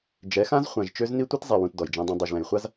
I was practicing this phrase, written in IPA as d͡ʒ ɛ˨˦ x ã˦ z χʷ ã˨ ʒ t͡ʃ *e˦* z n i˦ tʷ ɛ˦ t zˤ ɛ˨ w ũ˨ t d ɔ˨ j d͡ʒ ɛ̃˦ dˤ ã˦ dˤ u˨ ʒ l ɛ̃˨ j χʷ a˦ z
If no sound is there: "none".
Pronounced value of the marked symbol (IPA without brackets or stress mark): ø˦